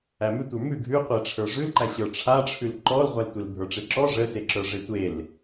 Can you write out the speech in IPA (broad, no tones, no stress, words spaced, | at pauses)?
æmʉtʷə˞ mʉ ɡʱʉqʷe ʈ͡ʂʰə˞ʐʉlǃæ ɕə˞ʈ͡ʂʰaʈ͡ʂʰʉl ǃɔlʁʷæltʷel bʱə˞ʈ͡ʂeǁɔ ʐəseǁə˞ʐe tʷel